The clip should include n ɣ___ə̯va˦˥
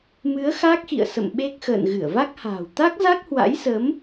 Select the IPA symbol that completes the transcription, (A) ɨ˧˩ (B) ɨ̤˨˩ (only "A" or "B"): A